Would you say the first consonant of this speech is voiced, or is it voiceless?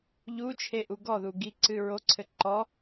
voiced